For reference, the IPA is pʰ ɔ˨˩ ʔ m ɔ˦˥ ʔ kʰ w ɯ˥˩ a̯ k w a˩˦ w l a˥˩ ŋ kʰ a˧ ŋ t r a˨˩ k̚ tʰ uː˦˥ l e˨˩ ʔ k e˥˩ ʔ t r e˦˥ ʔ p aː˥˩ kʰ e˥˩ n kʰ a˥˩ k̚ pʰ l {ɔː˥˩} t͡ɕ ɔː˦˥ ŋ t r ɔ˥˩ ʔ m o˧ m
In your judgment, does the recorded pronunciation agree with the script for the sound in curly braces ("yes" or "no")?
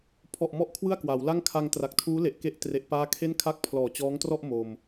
no